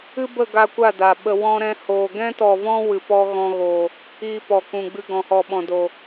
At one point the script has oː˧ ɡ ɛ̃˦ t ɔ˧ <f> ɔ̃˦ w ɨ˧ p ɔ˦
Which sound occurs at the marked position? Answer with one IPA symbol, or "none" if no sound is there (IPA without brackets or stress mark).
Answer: v